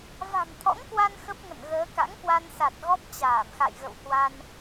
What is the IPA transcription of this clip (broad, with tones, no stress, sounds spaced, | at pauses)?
v a̤˨˩ m t̪ʰ ɔ̰˧˥ ŋ k w a˧ n x ə˦˥ p̚ ŋ ə̰˧˨ n ɣ əː˨˦ k a̰˧˥ ŋ k w a˧ n s a˨˩ t̚ ɣ ɔ˦˥ p̚ t͡ɕ aː˧˩ m x a̰˧˨ j ɣ ə̰˧˨ w h w a˧ n